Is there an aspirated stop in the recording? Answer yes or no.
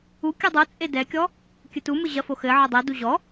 no